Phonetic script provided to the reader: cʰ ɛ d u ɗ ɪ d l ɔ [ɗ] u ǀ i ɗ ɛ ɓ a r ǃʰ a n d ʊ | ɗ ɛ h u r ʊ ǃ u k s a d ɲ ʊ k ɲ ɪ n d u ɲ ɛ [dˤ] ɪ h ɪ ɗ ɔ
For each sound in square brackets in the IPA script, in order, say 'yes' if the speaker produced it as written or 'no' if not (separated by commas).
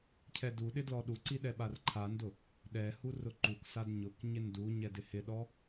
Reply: yes, no